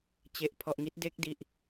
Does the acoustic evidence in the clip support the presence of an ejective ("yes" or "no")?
no